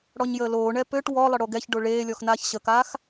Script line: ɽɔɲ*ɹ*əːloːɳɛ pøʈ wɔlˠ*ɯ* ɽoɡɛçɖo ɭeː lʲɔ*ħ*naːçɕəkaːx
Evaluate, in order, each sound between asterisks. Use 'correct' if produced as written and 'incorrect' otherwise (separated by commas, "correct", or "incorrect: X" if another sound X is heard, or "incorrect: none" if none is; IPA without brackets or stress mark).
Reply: incorrect: j, incorrect: ə, incorrect: x